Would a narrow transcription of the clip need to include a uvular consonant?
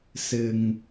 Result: no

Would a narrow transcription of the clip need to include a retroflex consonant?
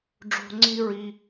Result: yes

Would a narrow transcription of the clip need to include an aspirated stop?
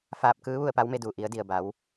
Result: no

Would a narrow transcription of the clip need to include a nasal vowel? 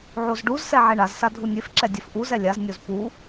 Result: no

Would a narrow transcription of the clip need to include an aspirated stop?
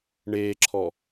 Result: yes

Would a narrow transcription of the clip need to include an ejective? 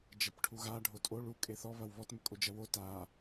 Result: yes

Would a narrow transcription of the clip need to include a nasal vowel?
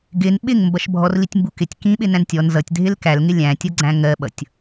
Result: yes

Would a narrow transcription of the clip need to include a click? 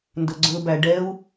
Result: yes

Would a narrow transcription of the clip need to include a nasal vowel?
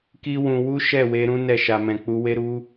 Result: yes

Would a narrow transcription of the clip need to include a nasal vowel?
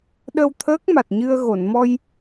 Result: no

